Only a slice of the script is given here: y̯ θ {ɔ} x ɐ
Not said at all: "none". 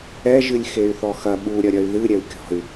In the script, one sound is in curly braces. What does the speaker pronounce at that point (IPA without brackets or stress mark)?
ɔ